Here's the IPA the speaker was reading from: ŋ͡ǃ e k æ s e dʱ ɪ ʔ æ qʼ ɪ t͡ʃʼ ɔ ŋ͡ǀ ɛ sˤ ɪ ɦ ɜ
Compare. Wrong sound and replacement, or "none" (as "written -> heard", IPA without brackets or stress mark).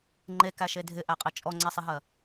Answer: s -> ʃ